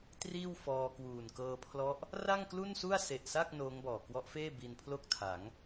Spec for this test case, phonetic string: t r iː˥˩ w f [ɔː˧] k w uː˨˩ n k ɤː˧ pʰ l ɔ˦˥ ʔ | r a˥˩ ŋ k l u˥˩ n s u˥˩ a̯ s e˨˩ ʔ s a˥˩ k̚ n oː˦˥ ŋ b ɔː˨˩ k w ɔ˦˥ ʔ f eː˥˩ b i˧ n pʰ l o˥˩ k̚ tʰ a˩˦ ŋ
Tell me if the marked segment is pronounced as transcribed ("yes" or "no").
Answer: yes